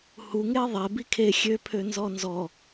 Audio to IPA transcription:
h u ŋ e ðˤ ɛ b i kʰ e xʲ ø pʰ ø n z ɔ n z ɔ

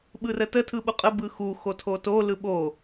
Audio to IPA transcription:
ɓ ɯ r ə t ə tʰ ɯ ɓ u qʼ ə b ɯ x u x o tʰ o t o l ɯ ɓ o

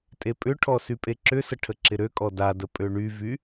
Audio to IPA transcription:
tʼ e pʼ ʏ ʈʰ ɔ s y pʼ e ǁ ʏ s ə ʈʰ ə ǁ ɪ ɾ ø kʼ ɔ d a d ə pʼ ø ɳ y v y

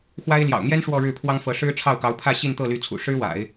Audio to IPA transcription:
x w a˥ ɪ̯ l j ɑ̰˨˩ ʊ̯ n̪ j ɛ˥ n ʂ w ɔ˥˧ ɻ ɻ̩˥˩ pʰ w ɑ˥ ŋ f ɤ˧˥ ʂ ɻ̩˥ ʈ͡ʂʰ ɑ˥˩ ʊ̯ k ɑ˧˥ ʊ̯ pʰ ä˥˧ ɕ i˥˧ n t̪ ɤ˥˩ l y˧˥ t͡sʰ ṵ˨˩ ʂ ɻ̩˥ w a̰˨˩˦ ɪ̯

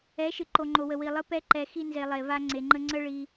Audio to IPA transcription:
ɛ˨˦ ʃ ɨ˨ ǃ o˨ ŋ͡ǃ o˨ w ə˨ w i˨ lˠ ɨ˧ p ɛ˧ ǃ ɛ˨ x i˧ n z e˨ lˠ e˨ v a˧ ŋ͡ǀ e˨ ŋ͡ǃ ə˧ ŋ͡ǀ ə˦ ɭ i˧

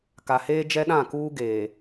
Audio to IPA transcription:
k a˨ h eː˦ d͡ʒ ɛ˦ ɗ ã˦˨ k uː˦ ɡ eː˨

